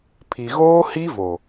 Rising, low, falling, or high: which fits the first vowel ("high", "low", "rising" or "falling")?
low